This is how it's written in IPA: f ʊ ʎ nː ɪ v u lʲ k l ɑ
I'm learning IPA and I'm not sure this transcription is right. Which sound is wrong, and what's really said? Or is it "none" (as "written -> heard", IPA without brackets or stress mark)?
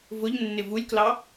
f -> v